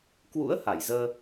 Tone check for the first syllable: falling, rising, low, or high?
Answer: rising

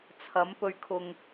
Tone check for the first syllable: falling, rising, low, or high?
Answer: rising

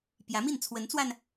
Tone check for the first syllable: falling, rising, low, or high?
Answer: rising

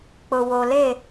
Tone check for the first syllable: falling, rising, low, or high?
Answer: low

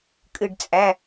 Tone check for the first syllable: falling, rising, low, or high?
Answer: falling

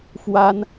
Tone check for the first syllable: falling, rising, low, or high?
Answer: high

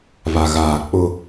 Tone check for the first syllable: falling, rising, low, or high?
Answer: low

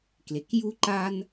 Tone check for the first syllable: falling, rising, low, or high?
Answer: low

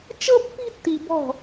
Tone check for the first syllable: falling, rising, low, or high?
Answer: high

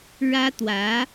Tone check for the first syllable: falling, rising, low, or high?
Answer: high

